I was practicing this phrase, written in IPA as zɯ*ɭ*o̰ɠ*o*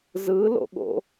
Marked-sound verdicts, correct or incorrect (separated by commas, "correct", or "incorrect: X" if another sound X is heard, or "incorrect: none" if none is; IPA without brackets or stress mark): incorrect: l, incorrect: o̰